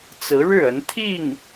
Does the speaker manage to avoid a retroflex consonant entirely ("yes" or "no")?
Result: no